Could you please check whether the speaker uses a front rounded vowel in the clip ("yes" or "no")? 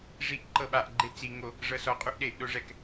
no